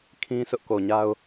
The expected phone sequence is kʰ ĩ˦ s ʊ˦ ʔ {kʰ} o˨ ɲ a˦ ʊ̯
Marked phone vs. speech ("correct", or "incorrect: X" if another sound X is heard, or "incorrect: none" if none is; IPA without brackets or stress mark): incorrect: k